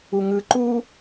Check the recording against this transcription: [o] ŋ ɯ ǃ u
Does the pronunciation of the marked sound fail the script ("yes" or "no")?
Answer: yes